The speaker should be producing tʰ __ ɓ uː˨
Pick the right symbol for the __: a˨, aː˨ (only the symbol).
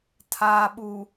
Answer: aː˨